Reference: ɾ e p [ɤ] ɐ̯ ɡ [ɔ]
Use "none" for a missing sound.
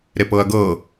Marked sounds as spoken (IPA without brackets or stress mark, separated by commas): ɤ, ɤ